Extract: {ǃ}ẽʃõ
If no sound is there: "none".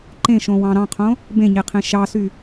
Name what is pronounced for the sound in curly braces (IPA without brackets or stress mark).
ǃ